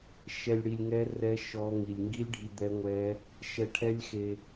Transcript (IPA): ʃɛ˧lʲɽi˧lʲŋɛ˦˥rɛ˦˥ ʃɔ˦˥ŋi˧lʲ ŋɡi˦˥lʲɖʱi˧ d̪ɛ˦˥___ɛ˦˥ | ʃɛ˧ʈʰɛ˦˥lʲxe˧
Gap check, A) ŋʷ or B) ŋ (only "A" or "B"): A